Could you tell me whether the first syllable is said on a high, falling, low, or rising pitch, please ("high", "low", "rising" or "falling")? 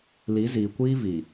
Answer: rising